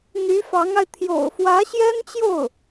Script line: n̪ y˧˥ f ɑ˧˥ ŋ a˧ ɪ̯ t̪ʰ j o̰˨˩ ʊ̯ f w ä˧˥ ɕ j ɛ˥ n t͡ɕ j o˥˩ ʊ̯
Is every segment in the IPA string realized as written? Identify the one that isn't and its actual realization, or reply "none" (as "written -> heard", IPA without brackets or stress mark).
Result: none